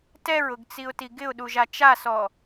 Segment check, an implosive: present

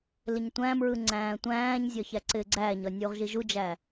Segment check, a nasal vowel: present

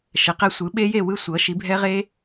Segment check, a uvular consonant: present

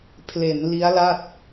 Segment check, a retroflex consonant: absent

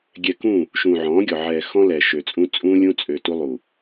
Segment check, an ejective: present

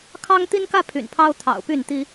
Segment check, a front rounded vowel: present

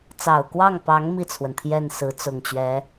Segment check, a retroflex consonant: absent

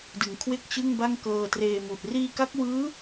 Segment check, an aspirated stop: present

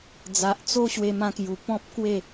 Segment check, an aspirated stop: absent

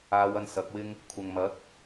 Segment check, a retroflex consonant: absent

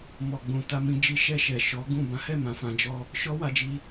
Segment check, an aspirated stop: absent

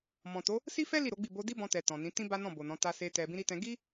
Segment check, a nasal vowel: present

